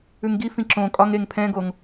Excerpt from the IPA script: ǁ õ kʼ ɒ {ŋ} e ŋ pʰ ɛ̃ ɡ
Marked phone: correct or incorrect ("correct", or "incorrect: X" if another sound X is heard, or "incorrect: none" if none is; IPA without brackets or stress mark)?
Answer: correct